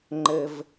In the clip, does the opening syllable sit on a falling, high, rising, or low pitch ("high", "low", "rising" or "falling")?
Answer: high